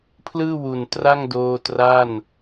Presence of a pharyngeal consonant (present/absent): absent